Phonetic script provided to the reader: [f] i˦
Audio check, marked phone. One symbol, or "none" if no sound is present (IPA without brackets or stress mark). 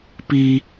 p